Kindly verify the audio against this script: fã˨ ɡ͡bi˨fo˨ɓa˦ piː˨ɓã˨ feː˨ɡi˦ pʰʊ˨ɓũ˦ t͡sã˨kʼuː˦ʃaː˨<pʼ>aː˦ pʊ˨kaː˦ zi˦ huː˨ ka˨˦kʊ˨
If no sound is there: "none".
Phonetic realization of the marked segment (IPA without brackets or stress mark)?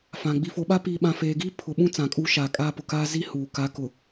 kʼ